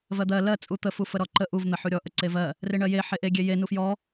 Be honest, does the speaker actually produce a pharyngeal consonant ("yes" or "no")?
yes